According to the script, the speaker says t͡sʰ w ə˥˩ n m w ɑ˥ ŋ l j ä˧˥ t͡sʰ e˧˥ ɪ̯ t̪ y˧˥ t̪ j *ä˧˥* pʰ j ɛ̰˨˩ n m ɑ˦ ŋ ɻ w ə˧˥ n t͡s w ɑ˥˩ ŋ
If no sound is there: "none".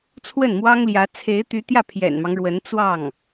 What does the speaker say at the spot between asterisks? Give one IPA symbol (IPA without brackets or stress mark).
ä˥˩